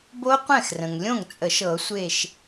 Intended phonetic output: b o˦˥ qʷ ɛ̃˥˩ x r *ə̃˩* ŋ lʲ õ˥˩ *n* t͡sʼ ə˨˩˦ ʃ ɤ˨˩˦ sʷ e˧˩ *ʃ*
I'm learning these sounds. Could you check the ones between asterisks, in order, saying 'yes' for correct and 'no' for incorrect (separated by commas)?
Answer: yes, no, yes